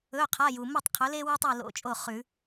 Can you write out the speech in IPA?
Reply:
ɵ˧˥˧qʰa˧˥˧ju˨ mo˥˨tˤqʰɵ˨˥le˥ wʉ˥tˤi˥˨lo̰˧˥˧t͡ʃʼo˥˨ χʉ˨˩˦

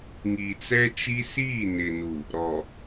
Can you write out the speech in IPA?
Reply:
ŋi˨t͡sɛ˦t͡ʃi˦ siː˦˨nɪ˨nu˨ | ɾɔ˨

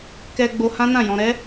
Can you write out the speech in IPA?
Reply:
kɛ˧ ɡ͡bo˧ hã˦nã˦˨jɔ̃˧ ɾɛ˦

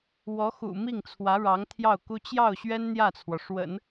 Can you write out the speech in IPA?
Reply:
wɔ˧˥xṵ˨˩ mi˥˩ŋt͡sʰwä˧˥ ɻɑ˧˥ŋt̪ʰjɑ˥˩ʊ̯ku˥ t͡ɕjɑ˥˩ʊ̯ɕɥɛ˥n n̪jä˥˩t͡sʰwɔ˩ʂwə̰˨˩˦n

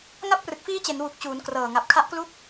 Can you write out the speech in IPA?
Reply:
ŋa˦˥p̚rɯ˨˩k̚fiː˦˥t͡ɕe˩˦n wu˨˩k̚t͡ɕuː˩˦n krɤː˨˩ŋa˨˩p̚ kʰa˦˥ʔklu˥˩k̚

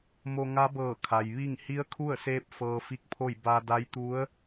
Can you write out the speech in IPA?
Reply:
mo˧ŋa˧˥ bɤː˧˩kʰa˩j ʋi˥˨ŋ hi˧˥ə̯kʰu˥˨ə̯seː˧˥p̚ fɤː˧fi˧˥k̚pʰo˥˨j ba˧ da˧˥jt̪u˧˥ə̯

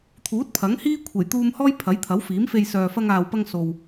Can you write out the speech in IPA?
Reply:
t̪ʰuː˨˥t̚pʰɐ˨˥ŋhiː˥ kʷʰe˨˩jt̪uː˧mhɔː˥j pʰɐ˨˥jt̪ʰɐ˨˥wfiː˨˥mfe˧j sœː˨fɐ˧ŋaː˨wpɐ˧ŋ so˨w

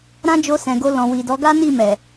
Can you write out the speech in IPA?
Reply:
ɾã˦d͡ʒo˧sɛ̃˨ɡo˧ lɔ̃˨wi˨dɔ˨˦ ɡa˦ni˦˨ mɛ˨

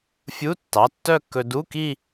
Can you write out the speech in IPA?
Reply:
fʲu˧˥˧ tːɑ˩˧˩tːœ˥˧kːɵ˧ du˧˥˧ki˥˧

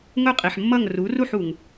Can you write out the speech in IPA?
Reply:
ŋʊ˥˩qʼi˩ħmːʌ˥˩ŋ ru˩˥ru˥˩ħ u˩ŋ

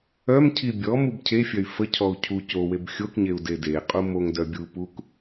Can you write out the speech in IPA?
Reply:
œmcʰi bʲɔ mubcʰefʲœy̯ fəcʰɔu̯ cʰu coweb xʲokɲeu̯ dedeqʼu moŋdœ bʲupuk

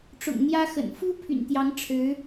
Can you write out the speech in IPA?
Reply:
ʈ͡ʂʊ̰˨˩ŋn̪jä˥xə̰˨˩n fu˥ pʰy̰˨˩nt̪jɑ˧˥ŋ ʈ͡ʂʰɻ̩˧˥

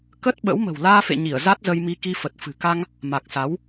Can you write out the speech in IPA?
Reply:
kə˦˥t̚ɓə̰˧˥w mə̤˨˩wlaː˧fḛ˧˨ɲi˧˩ə̯ za˦˥t̚zə˧jmi˧ ki˧fə˨˩t̚ fɨ̤˨˩ka˧ŋ | ma˨˩k̚sa˨˦w

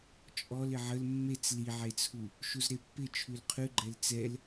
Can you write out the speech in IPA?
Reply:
t͡ʃʼɔl ɪʕəl mːet͡s liʕet͡sʰu | ʃuzɾepːɪ t͡ʃʰʉlqʰʉɡ͡ǃɛl t͡sɛl

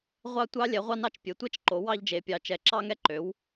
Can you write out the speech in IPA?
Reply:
ʁʷɑ˥˧tʷɑ˥ lʲɛ˩˥ʁʷɑ˥˧nɑ˥˧t͡ʃ pʲe˩˥tʷɛ˥t͡ʃ ǃo˩˥wɑ˥˧ʎd͡ʒe˩˥pʲɑ˩˥ t͡ʃɛ˩˥ǁɑ˥ŋɛ˥ ǃø˩˥w

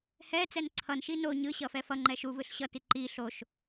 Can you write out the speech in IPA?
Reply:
hɛt͡sɛn ǀʰʌnʃi no ɲɯ ɕʌfɛfʌŋ͡ǃɛ ʃuvɯɬ ɕʌti ǃi ɬoʃ

